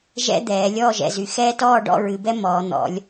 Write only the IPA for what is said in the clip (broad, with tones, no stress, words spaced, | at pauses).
ʒɛ̰˥ d̪ɛː˩˧ lʲɔː˥˧ʒɛ̰˩˧zy˩˧ xɛː˥ tɔː˥˧ ɖɔ̰˥˧ɹɨ˩˧bɛ˥ mɔː˩˧n̪ɔ̰˩˧lʲ